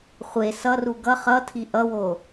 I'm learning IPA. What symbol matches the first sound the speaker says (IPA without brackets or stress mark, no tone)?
χʷ